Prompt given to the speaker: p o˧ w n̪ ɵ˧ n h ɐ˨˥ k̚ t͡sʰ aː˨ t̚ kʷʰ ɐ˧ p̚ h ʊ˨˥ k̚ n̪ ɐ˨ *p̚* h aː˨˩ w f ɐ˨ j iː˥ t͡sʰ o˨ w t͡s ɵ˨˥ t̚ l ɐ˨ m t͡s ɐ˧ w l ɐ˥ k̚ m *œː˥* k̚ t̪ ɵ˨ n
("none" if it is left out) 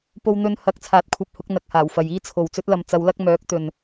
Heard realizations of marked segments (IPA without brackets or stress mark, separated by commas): k̚, œː˨˥